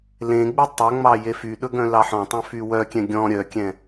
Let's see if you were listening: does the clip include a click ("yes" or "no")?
no